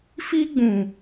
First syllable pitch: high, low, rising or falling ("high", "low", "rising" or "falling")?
high